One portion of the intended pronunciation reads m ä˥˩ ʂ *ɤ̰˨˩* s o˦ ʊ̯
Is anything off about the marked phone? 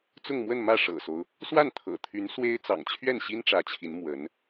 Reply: no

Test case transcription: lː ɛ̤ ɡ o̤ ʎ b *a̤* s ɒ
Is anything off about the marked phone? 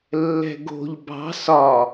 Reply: yes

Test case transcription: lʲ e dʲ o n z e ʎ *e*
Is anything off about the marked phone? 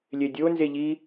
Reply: yes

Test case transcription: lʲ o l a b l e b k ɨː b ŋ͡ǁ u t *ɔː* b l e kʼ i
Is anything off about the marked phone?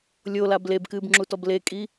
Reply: yes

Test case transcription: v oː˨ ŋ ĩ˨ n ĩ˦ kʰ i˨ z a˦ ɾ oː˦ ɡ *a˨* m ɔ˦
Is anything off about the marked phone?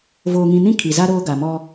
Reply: no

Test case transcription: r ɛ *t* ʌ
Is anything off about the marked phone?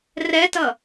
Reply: no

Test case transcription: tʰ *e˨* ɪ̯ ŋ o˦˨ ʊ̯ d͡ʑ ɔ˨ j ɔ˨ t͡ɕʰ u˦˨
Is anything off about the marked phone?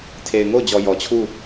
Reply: no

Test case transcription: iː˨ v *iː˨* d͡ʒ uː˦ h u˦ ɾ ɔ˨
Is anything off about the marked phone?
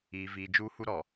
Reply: no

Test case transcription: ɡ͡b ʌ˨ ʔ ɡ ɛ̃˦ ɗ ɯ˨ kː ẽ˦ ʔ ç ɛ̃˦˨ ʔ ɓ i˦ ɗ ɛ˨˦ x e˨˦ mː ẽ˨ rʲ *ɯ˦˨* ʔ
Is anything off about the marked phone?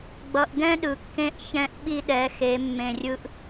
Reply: yes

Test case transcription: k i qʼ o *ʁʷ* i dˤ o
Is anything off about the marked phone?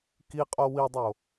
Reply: yes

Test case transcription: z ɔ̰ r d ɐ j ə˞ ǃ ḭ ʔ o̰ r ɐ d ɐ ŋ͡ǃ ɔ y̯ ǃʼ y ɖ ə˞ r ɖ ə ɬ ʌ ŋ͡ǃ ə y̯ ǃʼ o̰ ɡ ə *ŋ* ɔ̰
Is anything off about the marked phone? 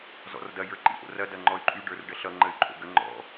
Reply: yes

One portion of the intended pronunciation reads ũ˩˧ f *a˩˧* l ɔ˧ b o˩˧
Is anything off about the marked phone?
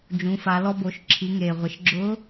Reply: no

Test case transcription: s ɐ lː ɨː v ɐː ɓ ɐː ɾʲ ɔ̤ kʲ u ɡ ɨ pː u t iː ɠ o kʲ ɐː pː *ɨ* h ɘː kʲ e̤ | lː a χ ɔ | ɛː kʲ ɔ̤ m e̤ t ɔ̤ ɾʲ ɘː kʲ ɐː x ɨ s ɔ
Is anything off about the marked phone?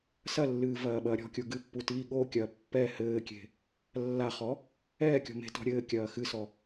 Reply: yes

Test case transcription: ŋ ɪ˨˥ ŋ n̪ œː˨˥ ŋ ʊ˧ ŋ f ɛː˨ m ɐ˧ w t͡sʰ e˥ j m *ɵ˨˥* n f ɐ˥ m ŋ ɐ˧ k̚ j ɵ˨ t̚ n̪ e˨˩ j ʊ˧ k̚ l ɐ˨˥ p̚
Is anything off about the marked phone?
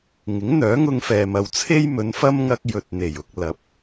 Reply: yes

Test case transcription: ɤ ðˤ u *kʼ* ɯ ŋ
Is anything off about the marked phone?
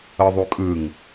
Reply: no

